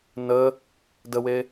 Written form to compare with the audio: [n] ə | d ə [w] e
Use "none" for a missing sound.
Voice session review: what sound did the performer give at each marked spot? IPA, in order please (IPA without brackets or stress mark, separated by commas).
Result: n, w